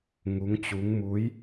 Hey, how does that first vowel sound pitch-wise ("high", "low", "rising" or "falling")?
rising